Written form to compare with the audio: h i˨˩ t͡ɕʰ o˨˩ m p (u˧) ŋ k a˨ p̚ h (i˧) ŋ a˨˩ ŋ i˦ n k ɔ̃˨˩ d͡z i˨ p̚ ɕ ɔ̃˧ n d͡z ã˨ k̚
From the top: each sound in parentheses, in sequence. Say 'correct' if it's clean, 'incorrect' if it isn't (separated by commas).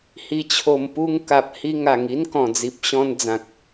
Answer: correct, correct